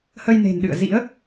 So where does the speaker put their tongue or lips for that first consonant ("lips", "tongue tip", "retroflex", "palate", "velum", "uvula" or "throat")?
throat